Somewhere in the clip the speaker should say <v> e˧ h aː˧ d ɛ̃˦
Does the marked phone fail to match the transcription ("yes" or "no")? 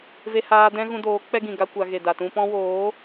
no